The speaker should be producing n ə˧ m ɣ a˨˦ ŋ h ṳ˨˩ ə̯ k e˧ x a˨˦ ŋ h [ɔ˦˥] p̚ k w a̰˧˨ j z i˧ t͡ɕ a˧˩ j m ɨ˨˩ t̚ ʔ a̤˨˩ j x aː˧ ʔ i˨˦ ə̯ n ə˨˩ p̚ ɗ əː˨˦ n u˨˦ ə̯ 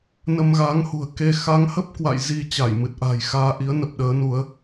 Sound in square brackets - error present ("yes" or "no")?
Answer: yes